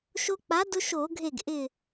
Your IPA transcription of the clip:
ʃ o˦ k͡p a˨˥ d ʊ˦ ʃ o˧˩˧ ɡʱ e˧˩ ɡ ʔ ɪ˧˩

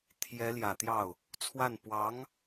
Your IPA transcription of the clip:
t̪ʰ j ɛ˧˥ l j ä˨˩ t̪ j ɑ˥˩ ʊ̯ | t͡sʰ w a˥˩ n p w ɑ˧˥ ŋ

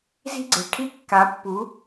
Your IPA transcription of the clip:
z i̤˦ ɡ͡ǀ e̤˨ ʈʰ i˦ kː a˨˦ pː u˨˦

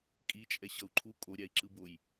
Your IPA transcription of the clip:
kʼ i t͡ʃʼ ɛ ɕ ʌ u̯ ǃʰ u kʼ o ɾʲ a i̯ ǁ ɯ b o j

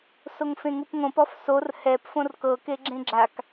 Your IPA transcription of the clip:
s o ŋ f ẽ ŋ u p ŋ õ p ɔ f s o r h ɛ p f õ r k ɤ k e ɡ͡ǁ ẽ ɡ͡ǁ a k

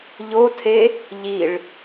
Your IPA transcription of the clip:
ʎ o tʰ e | ʎ i ɭ

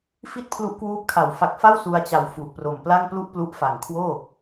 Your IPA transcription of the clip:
f i˥˩ t̚ pʰ l u˦˥ ʔ k w uː˦˥ p̚ kʰ a˨˩ w f a˨˩ k̚ f a˥˩ w s u˧ a̯ t͡ɕ a˨˩ w f u˨˩ ʔ p r o˨˩ m p l a˥˩ ŋ p l u˥˩ ʔ p l u˦˥ ʔ f a˨˩ ŋ kʰ w oː˥˩

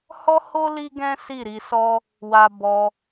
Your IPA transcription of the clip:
h ɔ˦ h o˦ l i˦ ɡ ɛ̃˦ s i˦˨ ɾ i˧ s ɔ˦ | w a˧ b ɔ˧

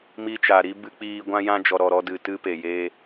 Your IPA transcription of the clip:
m i˧ t͡ʃ a˨ ɾ i˦ b ɨ˧ k͡p iː˧ ɡʷ ã˧ j ã˧ d͡ʒ ɔ˨ ɾ ɔ˨ ɾ ɔ˧ d ɨ˨ t ɨ˧ p e˨ j eː˧

